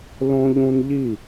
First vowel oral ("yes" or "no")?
no